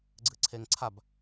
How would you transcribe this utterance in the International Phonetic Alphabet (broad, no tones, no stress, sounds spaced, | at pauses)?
ɡ͡ǀ ɨ ǀʰ e ŋ ǀʰ a b